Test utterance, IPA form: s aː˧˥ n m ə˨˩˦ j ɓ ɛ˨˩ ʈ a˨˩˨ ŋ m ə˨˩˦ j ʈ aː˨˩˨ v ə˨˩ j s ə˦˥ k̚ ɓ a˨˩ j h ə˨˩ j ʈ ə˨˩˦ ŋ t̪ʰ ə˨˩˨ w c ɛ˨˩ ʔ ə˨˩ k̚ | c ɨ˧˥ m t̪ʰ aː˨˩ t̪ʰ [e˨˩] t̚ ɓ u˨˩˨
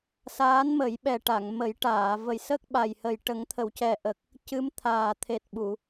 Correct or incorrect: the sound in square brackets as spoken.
correct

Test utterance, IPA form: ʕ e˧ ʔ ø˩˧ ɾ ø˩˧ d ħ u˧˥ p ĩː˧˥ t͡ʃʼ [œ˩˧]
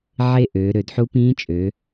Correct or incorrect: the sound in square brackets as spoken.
incorrect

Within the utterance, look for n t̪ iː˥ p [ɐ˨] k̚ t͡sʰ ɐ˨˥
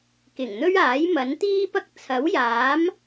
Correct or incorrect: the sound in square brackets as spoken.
incorrect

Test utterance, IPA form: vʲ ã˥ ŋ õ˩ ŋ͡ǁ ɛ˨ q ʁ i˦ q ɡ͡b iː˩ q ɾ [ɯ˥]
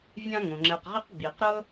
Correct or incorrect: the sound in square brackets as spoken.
incorrect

